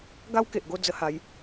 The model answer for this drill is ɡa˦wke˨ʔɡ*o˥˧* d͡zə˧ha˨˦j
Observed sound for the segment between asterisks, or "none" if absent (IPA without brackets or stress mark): o˥˧